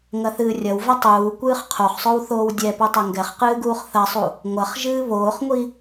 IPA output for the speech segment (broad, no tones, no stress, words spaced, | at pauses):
ŋɐθɨːrʲɐwvɐ tˤuː kʷɨːχqʰoχsˤow θoːwdʲɛpu tˤɐŋɡɛχqɨː ɡuːχθɐsˤu | ŋʷɐχ ʒɨːβoːχŋʷi